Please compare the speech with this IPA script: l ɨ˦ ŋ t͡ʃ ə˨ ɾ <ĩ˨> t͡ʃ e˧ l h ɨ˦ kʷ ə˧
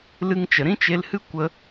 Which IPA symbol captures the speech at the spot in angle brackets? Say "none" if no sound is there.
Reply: ĩ˦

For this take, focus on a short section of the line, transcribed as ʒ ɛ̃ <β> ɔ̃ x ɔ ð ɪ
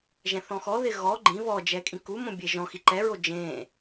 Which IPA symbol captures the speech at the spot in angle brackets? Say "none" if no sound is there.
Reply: θ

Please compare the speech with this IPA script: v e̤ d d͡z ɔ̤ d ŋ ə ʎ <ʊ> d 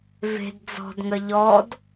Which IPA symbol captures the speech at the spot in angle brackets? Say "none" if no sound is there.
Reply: ɔ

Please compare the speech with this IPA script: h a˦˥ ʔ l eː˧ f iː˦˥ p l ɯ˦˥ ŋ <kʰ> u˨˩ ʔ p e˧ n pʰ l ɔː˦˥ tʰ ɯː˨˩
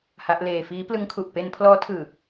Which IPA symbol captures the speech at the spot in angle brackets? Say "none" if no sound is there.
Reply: kʰ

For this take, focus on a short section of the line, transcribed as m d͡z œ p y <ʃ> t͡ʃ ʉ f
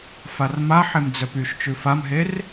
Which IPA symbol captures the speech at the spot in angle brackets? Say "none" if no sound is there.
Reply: ʃ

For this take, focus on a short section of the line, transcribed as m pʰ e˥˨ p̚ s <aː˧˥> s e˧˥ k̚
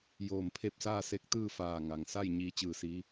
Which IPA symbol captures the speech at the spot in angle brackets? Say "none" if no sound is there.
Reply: aː˥˨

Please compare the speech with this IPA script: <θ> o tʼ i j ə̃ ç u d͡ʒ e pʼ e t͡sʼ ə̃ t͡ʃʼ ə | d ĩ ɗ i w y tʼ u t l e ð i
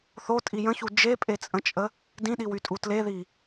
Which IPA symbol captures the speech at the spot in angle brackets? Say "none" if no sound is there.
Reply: θ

